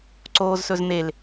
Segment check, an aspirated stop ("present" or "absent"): absent